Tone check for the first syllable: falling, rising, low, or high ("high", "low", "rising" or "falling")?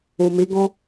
low